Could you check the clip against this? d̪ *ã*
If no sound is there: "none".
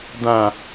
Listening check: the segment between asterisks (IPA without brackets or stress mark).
ã